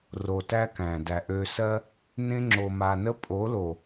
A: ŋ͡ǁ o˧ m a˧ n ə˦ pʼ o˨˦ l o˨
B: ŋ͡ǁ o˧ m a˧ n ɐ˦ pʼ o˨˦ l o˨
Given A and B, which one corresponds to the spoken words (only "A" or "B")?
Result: A